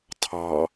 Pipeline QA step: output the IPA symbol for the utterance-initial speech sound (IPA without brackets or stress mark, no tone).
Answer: tʰ